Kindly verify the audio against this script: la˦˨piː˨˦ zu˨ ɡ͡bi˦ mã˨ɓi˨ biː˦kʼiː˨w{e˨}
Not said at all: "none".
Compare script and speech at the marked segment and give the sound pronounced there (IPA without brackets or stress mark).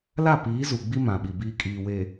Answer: e˨